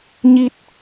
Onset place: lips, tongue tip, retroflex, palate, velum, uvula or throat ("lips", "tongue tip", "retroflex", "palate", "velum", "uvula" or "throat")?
palate